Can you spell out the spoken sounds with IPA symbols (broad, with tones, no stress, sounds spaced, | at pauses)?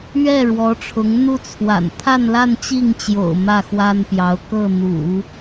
ɥ ɛ˥˩ ɻ w ɔ˧˥ ʈ͡ʂʰ ʊ˧˥ ŋ n̪ u˥ t͡sʰ w a̰˨˩ n t̪ʰ a˥˧ n l a˥˧ n t͡ɕ i˥˩ ŋ t͡ɕ j o̰˨˩ ʊ̯ m ä˥˩ x w a˥ n p j ɑ˧˥ ʊ̯ k ɤ˥˩ n̪ ṵ˨˩˦